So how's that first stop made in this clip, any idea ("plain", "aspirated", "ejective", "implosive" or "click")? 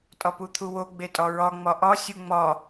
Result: ejective